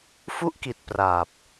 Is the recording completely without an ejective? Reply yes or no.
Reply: yes